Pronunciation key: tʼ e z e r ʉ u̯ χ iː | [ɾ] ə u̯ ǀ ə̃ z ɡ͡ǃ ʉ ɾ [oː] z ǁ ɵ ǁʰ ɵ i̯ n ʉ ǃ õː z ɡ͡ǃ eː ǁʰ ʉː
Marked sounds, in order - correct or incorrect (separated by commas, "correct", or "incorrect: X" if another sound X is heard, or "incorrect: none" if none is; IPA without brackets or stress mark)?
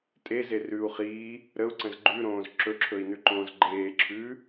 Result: correct, incorrect: õː